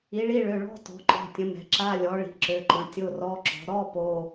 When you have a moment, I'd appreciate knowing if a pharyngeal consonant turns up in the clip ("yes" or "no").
no